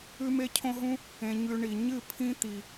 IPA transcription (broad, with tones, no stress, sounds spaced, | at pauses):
ʉ˦ m e˦ cʰ õ˦ ɦ ũ˦ | ẽ˧ ɲ ʉ˧ ɳ i˨ ɲ ɨ˦˨ pʰ ĩ˦ t̪ i˨